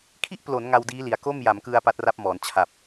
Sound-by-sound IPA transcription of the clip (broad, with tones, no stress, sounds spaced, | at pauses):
kʰ i˥˩ ʔ p l o˩˦ n ŋ a˧ w d iː˦˥ l i˩˦ a̯ k o˥˩ m j a˩˦ m k ɯ˧ a̯ p a˦˥ t̚ r a˦˥ p̚ m ɔː˩˦ n t͡ɕʰ a˨˩ p̚